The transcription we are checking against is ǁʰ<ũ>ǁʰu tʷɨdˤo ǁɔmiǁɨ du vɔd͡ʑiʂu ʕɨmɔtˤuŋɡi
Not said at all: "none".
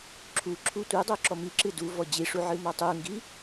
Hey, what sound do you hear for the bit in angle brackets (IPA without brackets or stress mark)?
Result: u